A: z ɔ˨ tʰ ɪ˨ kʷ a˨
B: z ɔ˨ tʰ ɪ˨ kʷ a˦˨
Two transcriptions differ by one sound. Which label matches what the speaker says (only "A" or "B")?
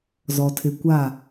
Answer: B